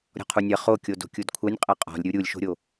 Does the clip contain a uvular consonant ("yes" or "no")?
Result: yes